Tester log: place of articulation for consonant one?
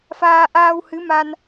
labial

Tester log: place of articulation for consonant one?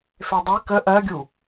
labial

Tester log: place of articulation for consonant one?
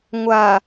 velar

